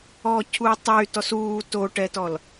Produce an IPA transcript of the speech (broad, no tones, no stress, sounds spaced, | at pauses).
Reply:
ɔː cʰ uː tˤ e y̯ t ɔ s uː t o ʈ ɛ t ɔ l